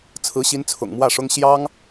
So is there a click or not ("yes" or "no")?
no